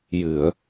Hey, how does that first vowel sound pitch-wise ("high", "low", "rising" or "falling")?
low